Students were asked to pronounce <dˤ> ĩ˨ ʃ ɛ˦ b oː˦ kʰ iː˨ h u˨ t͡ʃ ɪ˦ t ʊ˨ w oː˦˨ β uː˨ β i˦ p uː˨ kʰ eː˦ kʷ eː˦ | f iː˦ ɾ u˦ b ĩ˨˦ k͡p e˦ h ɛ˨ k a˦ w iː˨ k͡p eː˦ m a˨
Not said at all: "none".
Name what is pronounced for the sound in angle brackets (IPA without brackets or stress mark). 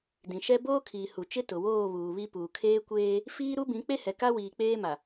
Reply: d